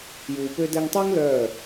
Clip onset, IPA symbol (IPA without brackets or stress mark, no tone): j